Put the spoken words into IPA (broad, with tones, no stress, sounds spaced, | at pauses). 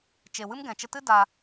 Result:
t͡ʃ e˨ w ɨ˦ m ɡ ɛ̃˨ t͡ʃ ə˧ t ɨ˦ d a˧